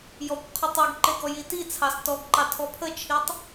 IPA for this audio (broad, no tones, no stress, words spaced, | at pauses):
jɔkʷ qʰɔtˤiɡǃe ɡɔjitit͡sʰɑs tɔɡǃɑ tʰɔpʰət͡ʃʰitˤ